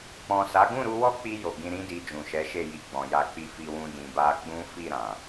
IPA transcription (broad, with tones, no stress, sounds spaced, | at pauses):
k͡p ɔ̃˨ s a˨˦ ɡ ũ˦˨ ɾ u˧ w ɔ˦ k͡p i˧ j o˨ ɡ ĩ˧ ɾ ĩ˦ d i˧ d͡ʒ ũ˨ ʃ ɛ˨˦ ʃ e˦˨ j i˧ ɡ͡b ɔ̃˨ j a˧ k͡p i˧ f i˧ w ũ˧ d ĩ˨ b a˧ ɡ͡b ũ˦ f i˦˨ ɾ ã˨